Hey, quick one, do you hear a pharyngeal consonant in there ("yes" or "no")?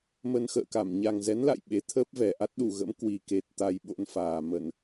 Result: no